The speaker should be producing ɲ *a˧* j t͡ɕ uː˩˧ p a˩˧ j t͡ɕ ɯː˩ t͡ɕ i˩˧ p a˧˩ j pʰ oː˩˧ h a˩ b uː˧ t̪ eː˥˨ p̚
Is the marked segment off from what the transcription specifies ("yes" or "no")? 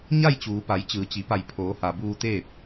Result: yes